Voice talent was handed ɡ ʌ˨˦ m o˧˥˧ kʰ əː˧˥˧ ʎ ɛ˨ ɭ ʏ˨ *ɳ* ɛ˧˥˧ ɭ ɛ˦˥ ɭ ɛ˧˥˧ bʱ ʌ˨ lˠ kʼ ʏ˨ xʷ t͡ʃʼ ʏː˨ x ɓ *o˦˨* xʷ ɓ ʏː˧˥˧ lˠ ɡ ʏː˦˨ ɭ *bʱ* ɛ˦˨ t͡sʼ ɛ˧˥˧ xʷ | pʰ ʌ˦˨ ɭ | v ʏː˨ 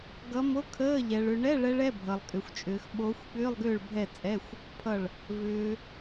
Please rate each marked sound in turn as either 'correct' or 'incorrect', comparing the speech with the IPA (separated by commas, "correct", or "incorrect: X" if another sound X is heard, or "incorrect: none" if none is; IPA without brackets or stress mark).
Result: correct, incorrect: o˨˦, correct